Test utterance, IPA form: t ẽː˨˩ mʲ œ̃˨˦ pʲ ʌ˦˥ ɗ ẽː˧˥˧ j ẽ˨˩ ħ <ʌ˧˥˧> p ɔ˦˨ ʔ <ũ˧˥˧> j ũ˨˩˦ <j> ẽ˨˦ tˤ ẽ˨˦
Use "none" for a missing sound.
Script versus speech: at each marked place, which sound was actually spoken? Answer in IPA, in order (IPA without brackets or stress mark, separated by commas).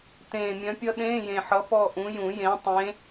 ʌ˨˦, ũ˨˦, j